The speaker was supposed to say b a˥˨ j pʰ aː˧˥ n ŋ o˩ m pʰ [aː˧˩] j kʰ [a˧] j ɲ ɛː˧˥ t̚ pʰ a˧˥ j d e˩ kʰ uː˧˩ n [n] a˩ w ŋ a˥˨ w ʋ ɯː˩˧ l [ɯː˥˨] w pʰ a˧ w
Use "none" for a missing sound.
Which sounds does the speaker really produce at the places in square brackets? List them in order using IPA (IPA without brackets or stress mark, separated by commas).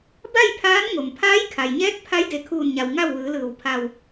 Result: aː˧˥, a˩, ɲ, ɯː˧˩